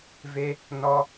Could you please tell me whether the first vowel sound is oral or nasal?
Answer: oral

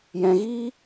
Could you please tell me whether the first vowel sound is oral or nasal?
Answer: nasal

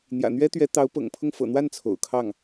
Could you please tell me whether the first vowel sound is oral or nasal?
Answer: oral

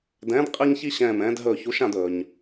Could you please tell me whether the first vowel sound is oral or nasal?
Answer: nasal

